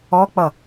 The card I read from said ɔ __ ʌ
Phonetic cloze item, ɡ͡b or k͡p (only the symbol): k͡p